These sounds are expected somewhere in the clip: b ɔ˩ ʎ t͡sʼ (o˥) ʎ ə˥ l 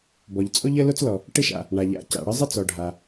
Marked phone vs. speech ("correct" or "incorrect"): correct